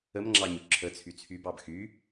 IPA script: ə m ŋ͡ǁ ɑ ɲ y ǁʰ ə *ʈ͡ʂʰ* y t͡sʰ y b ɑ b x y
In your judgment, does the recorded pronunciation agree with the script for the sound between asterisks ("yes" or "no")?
no